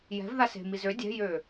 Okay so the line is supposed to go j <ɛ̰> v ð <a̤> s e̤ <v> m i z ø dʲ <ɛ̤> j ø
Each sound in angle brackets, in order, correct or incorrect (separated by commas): incorrect, incorrect, incorrect, correct